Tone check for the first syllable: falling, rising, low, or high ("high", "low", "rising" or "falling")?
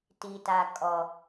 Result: low